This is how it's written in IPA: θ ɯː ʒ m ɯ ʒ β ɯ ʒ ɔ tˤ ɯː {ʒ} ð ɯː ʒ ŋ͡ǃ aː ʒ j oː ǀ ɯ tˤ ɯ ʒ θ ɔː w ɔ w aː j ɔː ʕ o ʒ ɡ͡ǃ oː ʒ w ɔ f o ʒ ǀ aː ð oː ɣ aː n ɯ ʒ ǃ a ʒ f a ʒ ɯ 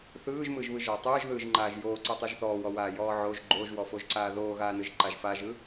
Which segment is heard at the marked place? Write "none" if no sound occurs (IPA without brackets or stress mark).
ʒ